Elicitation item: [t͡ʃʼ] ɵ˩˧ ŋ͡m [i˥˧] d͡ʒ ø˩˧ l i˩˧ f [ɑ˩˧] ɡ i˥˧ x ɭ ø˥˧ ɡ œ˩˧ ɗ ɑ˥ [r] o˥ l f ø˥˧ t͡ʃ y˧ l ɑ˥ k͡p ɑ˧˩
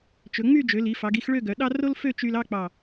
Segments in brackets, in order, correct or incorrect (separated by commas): incorrect, incorrect, correct, correct